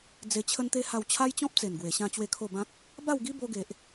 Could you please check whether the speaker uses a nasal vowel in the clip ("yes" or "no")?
yes